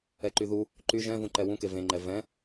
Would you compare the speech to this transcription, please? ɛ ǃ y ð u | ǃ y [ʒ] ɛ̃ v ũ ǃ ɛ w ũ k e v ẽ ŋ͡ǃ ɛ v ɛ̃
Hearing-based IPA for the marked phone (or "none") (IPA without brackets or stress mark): ʒ